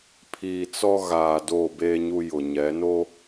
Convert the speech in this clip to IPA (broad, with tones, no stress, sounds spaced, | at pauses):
pʰ iː˨ t͡s ɔ˦ ɣ aː˨ d oː˦˨ b eː˦ ɲ u˦ j ʊ˨ ɲ ɛ˨˦ n o˦